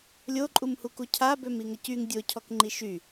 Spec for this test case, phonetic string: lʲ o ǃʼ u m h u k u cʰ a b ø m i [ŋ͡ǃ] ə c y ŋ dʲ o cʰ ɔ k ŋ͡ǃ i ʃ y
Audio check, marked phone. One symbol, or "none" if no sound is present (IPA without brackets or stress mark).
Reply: ŋ